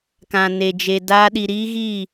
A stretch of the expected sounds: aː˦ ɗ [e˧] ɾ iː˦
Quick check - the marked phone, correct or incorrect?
incorrect